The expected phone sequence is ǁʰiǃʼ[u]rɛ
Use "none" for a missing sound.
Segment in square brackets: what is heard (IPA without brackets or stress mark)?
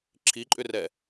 ʏ